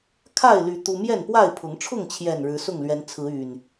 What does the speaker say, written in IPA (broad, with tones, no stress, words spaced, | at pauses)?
kʰa˥˨ɪ̯ly˨˦ t̪u˦ mjɛ˥˨npwa˥˨ɪ̯pʰʊ˨˦ŋ ʈ͡ʂʰʊ˥˨ŋt͡ɕʰjɛ˨˩n ɻɻ̩˨˦sʊ˥˨ŋlɥɛ˨˦n t͡sʰɹ̩˨˦y˨˩n